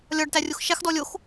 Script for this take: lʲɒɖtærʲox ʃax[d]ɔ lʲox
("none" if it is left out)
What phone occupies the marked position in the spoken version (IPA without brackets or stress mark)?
d